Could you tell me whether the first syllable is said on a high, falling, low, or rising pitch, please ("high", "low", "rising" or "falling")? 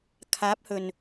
rising